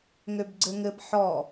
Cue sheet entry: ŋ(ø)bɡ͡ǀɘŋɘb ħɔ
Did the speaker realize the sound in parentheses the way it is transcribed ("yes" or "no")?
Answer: yes